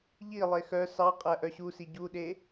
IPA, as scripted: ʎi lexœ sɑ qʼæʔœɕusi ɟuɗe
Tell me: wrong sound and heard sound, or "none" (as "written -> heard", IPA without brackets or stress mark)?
l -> lˠ